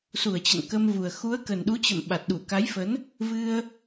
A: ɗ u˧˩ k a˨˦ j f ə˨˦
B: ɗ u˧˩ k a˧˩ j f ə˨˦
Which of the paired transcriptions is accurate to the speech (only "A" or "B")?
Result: A